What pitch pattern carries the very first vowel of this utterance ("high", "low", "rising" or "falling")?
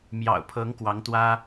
low